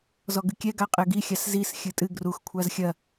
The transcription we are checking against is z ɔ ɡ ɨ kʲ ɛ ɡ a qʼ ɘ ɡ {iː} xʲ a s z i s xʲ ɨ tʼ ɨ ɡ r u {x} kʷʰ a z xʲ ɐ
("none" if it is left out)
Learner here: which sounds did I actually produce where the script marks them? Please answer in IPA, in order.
i, x

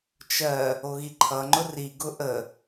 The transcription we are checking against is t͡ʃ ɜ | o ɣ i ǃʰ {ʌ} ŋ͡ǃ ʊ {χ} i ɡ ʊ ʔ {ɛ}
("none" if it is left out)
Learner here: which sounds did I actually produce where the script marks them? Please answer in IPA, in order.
ʌ, r, ə

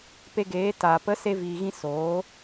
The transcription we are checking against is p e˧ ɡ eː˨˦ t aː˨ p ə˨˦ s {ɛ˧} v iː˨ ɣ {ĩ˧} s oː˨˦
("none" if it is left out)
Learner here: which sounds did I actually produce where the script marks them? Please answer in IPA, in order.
e˧, ĩ˧

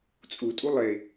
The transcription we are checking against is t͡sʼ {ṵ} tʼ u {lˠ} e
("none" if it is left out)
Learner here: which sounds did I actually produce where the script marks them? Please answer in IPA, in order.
u, lˠ

